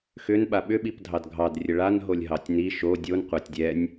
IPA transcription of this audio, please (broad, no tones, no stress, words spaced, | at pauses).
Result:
xʏnɓa ɓʏɓip dʱɑdɡʱɑd rʲəɭanɦolʲ ɦɑtʲni ʃo dʲon qʷætʲdʲɛnʲ